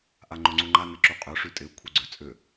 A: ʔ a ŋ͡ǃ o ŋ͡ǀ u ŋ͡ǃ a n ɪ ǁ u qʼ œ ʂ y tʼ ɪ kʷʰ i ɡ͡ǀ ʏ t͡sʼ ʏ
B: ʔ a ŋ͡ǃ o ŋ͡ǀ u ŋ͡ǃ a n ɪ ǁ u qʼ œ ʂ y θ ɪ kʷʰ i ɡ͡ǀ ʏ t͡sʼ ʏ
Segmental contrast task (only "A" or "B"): A